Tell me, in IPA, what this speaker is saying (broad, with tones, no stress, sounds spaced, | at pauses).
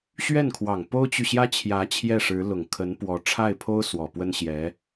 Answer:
ɕ ɥ ɛ˥˩ n kʰ w ɑ˨˩ ŋ p o˥ ʊ̯ t͡ɕ y˨ ɕ j ä˥ t͡ɕʰ j ä˧˥ t͡ɕʰ j ɛ˥˩ ʂ ɻ̩˧˥ l ʊ˨˩ ŋ kʰ ə˧˥ n p w ɔ˧˥ ʈ͡ʂʰ a˥˩ ɪ̯ pʰ o˥ ʊ̯ s w ɔ˨˩ p w ə˥ n ɕ j ɛ˧˥